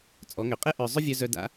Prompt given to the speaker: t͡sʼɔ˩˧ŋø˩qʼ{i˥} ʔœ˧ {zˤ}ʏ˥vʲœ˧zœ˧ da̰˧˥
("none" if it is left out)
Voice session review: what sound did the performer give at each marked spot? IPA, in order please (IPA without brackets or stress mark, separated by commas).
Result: e˥, zˤ